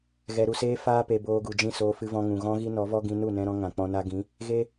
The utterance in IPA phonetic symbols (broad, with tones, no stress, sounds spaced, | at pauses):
ɣ ɛ˨ ɾ u˨ s eː˧ f aː˧ p e˨ b oː˧ ɡ u˨ d͡ʒ ĩ˦˨ s oː˧ f ɨ˧ v ɔ̃˧ ŋ ũ˨ ɣ ɔ̃˦ ɣ i˦ n ɔ˨˦ v ɔ˦ ɡ ĩ˧ n u˦˨ n ɛ̃˧ ɾ ɔ̃˧ ŋ ã˨ k͡p ɔ̃˧ n a˦ ɡ ĩ˨˦ | ɣ e˦